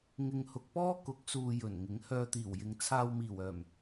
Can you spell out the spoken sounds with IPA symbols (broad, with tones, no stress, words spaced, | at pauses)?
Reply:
ŋɪ˨ŋhʊ˨k̚pɔː˥ kʊ˨˥k̚suː˨ jɵ˨˩nŋɪ˨˥ŋ hœː˧t̪iː˨˩wjɪ˨˧ŋ t͡sʰaː˧wmiː˨˩wœː˨˩m